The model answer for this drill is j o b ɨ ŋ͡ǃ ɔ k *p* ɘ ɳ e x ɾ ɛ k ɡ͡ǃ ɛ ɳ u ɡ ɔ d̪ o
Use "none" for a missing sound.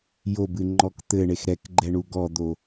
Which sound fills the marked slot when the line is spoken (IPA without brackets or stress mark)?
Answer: t̪